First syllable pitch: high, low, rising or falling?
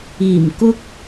low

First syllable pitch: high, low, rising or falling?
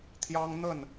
high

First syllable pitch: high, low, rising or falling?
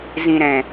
low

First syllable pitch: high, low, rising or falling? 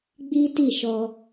high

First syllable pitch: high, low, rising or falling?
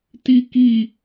high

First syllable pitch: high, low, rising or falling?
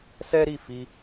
high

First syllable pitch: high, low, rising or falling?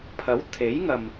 rising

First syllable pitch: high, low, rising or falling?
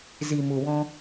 low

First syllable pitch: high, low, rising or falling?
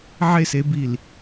falling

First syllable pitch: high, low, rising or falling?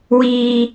low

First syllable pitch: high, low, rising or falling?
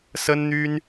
high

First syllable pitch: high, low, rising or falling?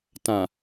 low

